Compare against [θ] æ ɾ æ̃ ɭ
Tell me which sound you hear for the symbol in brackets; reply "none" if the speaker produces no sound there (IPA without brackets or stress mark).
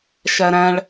ʃ